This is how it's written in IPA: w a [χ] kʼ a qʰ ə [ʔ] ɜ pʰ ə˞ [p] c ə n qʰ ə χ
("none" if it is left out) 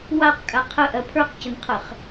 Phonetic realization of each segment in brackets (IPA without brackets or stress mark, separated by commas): q, ʔ, q